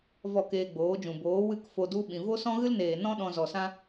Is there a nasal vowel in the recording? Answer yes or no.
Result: yes